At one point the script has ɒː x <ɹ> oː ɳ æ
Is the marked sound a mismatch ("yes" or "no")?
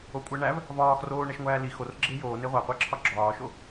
yes